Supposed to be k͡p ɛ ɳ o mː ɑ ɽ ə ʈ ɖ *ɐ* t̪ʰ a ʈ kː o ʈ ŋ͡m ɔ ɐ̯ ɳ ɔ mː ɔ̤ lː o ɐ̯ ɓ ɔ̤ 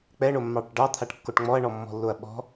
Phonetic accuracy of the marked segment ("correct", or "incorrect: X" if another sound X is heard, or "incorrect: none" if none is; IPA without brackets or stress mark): incorrect: ɑ